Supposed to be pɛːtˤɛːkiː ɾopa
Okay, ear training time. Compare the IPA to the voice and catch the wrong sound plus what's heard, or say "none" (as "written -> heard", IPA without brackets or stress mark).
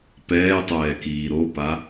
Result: none